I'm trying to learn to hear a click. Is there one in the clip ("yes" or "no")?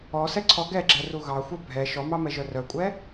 yes